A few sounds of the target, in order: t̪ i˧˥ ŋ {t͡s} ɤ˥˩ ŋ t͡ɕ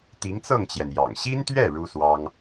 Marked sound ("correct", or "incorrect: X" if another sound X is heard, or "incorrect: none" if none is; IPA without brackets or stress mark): correct